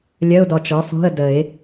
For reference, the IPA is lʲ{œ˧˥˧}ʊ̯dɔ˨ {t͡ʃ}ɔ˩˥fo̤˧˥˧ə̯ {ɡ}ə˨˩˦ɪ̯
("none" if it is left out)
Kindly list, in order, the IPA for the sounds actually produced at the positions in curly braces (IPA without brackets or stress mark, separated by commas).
œ˧˥˧, t͡ʃ, d